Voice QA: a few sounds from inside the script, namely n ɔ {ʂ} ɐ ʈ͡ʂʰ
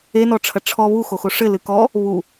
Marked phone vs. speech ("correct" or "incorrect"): incorrect